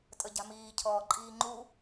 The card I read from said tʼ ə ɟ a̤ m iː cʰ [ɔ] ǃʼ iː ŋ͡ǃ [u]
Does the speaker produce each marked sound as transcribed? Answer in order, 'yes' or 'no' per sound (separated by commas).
no, yes